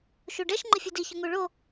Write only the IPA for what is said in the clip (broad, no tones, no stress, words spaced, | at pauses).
ʃuɖɛʃ ŋ͡ǃɪfʲudi çʊŋuɭo